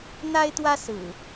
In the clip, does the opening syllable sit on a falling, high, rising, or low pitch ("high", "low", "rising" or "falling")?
high